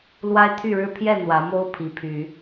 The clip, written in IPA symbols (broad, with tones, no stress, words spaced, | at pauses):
lwa˦ɪ̯t̪ʰy˥˨ɻɻ̩˦ pʰjɛ˥˨ n̪wä˨˦mo˦ʊ̯ pʰi˨˦pʰy˨˦